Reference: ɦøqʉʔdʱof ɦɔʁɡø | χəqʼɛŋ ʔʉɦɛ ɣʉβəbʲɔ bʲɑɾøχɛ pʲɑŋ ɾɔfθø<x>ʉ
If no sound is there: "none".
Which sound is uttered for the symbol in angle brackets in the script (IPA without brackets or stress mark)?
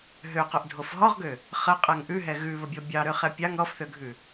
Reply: ɡʱ